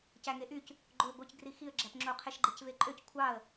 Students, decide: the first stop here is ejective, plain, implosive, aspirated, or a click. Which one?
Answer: plain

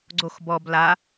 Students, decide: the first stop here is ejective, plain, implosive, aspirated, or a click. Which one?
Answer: click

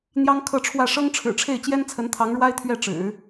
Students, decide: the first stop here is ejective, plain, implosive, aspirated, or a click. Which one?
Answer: aspirated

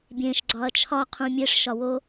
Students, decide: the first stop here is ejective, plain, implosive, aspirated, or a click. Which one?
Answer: plain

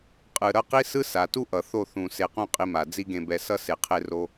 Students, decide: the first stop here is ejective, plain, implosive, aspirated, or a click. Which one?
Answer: ejective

